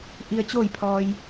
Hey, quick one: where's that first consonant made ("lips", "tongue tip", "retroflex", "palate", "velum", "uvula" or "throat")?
throat